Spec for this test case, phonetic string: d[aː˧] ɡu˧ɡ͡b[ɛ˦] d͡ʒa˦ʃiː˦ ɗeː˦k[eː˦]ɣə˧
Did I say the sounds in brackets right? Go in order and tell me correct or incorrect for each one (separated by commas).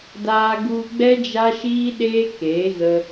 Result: correct, correct, incorrect